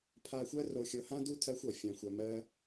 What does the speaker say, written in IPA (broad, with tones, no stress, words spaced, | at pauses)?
pʰa˧xʷɜ˦ ro˧xʲɤ˧hã˦ du˦ tʰɜ˦xʷɔ˨ fʲã˨xʷɜ˨ mɜ˦